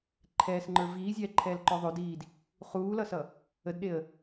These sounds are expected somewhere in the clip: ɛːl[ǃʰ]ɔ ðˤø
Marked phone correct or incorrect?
incorrect